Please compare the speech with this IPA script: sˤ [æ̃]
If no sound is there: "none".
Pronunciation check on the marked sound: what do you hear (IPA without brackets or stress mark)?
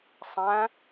æ̃